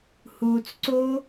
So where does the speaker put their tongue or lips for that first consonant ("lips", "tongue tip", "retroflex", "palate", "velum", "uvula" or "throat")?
throat